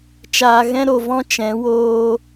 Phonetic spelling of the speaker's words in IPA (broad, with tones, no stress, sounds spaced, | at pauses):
t͡ʃ aː˨ ɣ ɛ̃˧ ɾ o˨ v ɔ̃˧ t͡ʃ ɛ̃˨˦ w oː˧